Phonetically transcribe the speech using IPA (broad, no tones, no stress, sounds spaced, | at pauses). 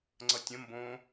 ŋ͡ǀ ʌ tʲ ə̃ m b õ